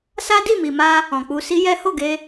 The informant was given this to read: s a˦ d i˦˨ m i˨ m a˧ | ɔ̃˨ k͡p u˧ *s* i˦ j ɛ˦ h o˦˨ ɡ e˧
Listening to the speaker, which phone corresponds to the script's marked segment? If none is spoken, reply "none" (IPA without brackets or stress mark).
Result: s